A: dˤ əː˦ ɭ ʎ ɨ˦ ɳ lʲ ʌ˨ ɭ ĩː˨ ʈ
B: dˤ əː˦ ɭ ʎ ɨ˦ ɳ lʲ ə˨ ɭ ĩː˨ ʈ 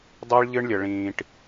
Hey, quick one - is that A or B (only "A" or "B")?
B